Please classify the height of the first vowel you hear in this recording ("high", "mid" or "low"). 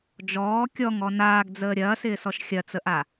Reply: mid